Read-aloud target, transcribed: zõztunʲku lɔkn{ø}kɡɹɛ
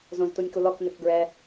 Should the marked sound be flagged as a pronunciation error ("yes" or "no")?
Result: no